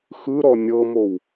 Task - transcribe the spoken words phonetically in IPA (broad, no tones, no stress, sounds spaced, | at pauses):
x ɯ ɾ ɔ nʲ ɤ m o w